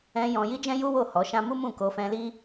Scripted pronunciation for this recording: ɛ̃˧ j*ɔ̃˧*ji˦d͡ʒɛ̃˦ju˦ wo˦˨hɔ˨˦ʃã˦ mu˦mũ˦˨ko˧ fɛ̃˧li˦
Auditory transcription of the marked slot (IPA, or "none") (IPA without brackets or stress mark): ɔ̃˧